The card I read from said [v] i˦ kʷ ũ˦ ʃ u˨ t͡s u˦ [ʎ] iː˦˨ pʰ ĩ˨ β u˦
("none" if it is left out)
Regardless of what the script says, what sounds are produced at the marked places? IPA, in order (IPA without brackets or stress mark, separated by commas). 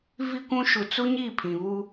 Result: v, ɲ